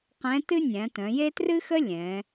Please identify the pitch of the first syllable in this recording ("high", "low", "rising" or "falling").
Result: rising